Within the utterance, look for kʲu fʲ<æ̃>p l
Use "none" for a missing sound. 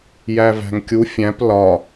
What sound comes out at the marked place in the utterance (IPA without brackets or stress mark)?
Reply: æ̃